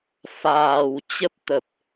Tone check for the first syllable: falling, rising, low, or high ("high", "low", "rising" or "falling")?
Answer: low